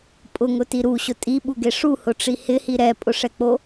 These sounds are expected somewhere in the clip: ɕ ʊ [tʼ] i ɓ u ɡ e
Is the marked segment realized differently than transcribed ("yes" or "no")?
no